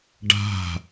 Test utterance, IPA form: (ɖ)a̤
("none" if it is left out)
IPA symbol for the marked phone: ɖ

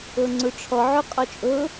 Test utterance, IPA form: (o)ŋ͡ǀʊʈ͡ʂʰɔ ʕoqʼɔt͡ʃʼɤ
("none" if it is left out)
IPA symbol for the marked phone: ɤ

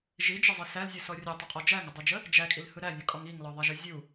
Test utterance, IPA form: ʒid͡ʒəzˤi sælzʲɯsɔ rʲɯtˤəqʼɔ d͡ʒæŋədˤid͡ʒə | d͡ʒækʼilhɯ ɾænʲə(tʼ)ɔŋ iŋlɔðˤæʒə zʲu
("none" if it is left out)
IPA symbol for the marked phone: kʼ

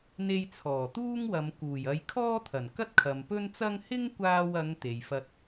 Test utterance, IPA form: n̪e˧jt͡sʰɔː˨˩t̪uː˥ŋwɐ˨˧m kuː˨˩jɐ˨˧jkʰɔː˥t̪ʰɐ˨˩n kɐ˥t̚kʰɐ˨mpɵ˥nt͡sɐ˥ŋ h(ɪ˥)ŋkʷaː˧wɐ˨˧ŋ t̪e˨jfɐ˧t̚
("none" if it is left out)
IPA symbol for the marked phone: ɪ˥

